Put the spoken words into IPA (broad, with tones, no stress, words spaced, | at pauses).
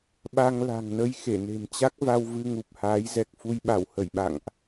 ɓa˧ŋla̤˨˩ŋnə˧j xe˧˩ne̤˨˩mt͡ɕa˦˥k̚va˧w vɨ˧ŋu˨˩p̚haː˨˦jzɛ˨˩k̚ fu˧jɓa˧˩whə˧˩jɓa̰˧˨ŋʔ